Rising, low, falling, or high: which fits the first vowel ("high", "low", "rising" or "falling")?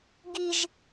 high